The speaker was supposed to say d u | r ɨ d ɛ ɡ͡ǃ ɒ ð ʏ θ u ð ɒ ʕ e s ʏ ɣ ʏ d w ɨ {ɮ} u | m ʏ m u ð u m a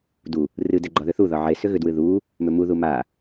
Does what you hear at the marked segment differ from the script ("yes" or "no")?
yes